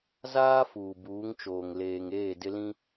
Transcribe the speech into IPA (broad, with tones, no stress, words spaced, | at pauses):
zaː˦ fuː˨buː˨˦ŋt͡ʃoː˨ŋ leː˨ŋeː˦˨ dɪ˦lĩ˦